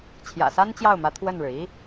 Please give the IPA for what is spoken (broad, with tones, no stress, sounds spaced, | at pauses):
t͡ɕʰ j ä̰˨˩ s a˥ n t͡ɕ j ɑ˥˩ ʊ̯ m ä˧˥ t̪ʰ w ə˥˩ n ɻ ɻ̩˩ i˥